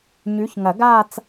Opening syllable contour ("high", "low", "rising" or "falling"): rising